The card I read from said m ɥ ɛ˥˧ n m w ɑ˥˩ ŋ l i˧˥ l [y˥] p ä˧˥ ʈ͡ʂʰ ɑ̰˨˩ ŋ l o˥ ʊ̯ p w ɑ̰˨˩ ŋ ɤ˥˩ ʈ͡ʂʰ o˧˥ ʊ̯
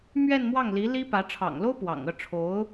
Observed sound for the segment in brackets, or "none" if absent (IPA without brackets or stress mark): i˥